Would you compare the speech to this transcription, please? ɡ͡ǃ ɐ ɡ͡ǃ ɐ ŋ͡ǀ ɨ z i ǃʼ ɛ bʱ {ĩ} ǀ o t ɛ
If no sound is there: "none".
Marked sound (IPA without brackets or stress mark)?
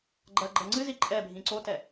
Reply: ĩ